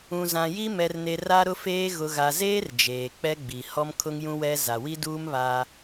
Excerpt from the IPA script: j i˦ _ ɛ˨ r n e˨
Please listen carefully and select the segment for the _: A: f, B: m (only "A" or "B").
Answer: B